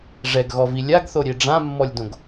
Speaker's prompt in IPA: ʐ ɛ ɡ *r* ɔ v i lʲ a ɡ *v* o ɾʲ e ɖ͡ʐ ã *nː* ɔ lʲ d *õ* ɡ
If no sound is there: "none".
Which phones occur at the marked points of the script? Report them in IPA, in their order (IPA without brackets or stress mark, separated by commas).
ɣ, θ, mː, õ